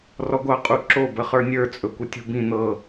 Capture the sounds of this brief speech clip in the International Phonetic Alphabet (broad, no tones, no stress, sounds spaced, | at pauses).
r ɔ ɡʷ ɑ qʼ u ǁ o b ə χ ə˞ nʲ ə˞ t͡sʼ ɵ kʷ ə tʲ ṳ b ĩ n̪ ɤ